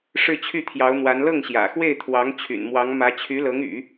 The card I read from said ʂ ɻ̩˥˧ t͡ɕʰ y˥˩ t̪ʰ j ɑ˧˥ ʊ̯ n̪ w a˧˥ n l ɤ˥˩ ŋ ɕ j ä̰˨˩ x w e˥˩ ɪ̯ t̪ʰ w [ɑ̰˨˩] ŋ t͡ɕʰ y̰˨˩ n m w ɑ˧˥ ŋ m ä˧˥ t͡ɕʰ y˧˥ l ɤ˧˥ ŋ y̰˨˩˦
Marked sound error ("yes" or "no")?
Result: yes